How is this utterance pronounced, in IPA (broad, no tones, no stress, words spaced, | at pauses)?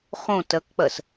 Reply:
χõ tɜkk͡pɜs